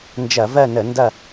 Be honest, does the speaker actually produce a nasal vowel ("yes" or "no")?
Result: no